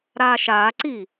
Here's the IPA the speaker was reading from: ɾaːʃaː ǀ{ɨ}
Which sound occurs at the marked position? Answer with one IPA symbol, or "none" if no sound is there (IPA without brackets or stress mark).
i